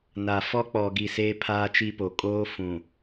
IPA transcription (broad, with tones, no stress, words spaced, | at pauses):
na˨ fɔ˦k͡pɔ˨ɡi˨ seː˦pʰaː˦t͡ʃi˦po˨ kʼoː˦fũ˨